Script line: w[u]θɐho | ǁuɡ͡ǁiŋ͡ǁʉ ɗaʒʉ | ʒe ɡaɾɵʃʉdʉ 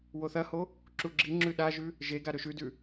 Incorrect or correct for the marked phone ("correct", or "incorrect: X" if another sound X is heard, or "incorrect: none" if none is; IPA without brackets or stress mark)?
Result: incorrect: o